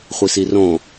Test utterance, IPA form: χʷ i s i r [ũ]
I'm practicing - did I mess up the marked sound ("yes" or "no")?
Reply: yes